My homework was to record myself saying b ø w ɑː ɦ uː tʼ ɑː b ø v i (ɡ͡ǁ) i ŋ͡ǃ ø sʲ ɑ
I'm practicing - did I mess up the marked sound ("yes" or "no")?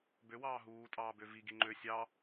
yes